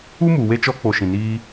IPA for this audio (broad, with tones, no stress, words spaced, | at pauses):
u˦mu˨ we˧t͡ʃɔ˧ k͡po˨ ʃĩ˨niː˧